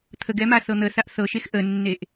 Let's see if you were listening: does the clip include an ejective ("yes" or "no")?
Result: no